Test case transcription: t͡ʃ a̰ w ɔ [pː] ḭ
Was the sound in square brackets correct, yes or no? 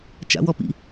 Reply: no